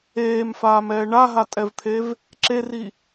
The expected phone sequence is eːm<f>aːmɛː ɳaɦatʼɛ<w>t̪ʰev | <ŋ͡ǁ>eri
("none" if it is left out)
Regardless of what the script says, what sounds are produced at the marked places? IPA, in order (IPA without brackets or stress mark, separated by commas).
f, v, ǁ